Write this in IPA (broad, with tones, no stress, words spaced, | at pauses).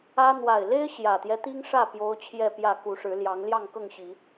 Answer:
ä˦ n̪wa˨˩ɪ̯le˦ɪ̯ ɕjä˨˩t̪jɛ˦t̪i˦ŋ ʂä˥˨ pjo˦ʊ̯t͡ɕʰjɛ˥˨pjä˥˨ ku˨˦ʂɻ̩˨˦ljɑ˨˦ŋ ljɑ˥˨ŋkɤ˥˨ŋɕi˨˦